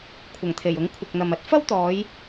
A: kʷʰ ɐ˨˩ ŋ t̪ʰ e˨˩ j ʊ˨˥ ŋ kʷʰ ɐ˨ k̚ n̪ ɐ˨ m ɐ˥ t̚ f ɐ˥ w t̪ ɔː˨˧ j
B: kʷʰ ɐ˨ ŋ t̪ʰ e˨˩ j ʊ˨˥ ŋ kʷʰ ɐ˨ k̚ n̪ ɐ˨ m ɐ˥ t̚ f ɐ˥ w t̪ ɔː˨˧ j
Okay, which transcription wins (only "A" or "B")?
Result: A